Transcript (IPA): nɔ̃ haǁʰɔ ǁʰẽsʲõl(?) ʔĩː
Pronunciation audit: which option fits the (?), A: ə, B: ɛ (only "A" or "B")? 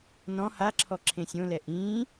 B